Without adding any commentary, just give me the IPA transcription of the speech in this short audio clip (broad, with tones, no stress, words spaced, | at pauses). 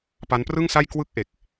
pa˦˥nprɯ˥˩ŋsa˥˩j kwɯ˥˩k̚ʔe˨˩k̚